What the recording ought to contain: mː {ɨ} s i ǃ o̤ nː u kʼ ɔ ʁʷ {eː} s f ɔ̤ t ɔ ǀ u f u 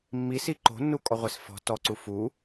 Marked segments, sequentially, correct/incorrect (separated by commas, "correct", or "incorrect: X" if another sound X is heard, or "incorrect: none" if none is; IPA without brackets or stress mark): incorrect: i, incorrect: e